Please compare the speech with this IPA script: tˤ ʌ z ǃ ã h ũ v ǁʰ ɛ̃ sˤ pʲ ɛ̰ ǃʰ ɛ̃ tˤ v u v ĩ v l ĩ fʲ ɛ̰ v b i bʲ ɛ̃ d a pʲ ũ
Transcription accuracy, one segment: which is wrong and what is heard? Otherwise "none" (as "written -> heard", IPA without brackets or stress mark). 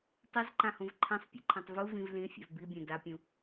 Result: ǁʰ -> ǃʰ